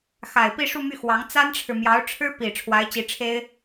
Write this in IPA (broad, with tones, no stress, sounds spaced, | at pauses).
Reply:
x a˨˩ ɪ̯ p i˥˧ ʂ u˥˧ m y˥˩ x w ɑ˧˥ ŋ t͡s a˥ n ʈ͡ʂʰ ɻ̩˨ m j ɑ˧˥ ʊ̯ ʈ͡ʂʰ ɻ̩˥ p i˨˩ ʈ͡ʂʰ w a˧˥ ɪ̯ t͡ɕ i˧˥ ʈ͡ʂʰ e˥ ɪ̯